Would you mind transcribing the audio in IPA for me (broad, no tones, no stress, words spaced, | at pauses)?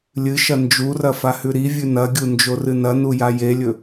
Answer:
lʲɨʃɐ nd͡ʒurɐ fahʉɾivʲʉ nɐɡʲu nd͡ʒorɨnɐnu jajelʲɵ